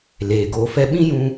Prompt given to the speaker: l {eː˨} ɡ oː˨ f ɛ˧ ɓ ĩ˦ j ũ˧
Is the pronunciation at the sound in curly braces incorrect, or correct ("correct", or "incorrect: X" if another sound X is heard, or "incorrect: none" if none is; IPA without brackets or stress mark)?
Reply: correct